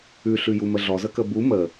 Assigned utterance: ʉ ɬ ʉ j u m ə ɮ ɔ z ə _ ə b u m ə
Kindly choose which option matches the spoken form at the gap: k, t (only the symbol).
k